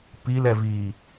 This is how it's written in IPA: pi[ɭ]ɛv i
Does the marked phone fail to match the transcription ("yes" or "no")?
yes